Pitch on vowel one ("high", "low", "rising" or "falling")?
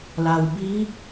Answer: low